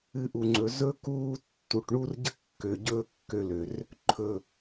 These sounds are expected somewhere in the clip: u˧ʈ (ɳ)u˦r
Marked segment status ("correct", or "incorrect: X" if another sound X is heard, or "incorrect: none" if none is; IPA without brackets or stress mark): correct